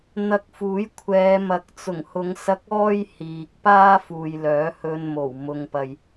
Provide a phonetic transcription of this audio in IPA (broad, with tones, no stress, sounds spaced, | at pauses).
n̪ ɐ˧ k̚ f uː˨˥ j kʷʰ ɛː˨˧ m ɐ˨ k̚ t͡s ʊ˨˩ ŋ h ʊ˨˧ ŋ s ɐ˧ k̚ ɔː˥ j h iː˨ k̚ p aː˥ f uː˨ j l œː˨˥ h ɵ˧ n m o˨˩ w m ʊ˨ ŋ p ɐ˨ j